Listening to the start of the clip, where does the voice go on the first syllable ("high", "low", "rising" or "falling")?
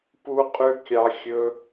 high